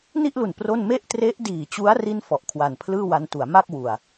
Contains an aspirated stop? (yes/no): yes